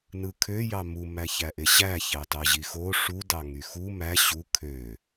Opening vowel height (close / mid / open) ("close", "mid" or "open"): close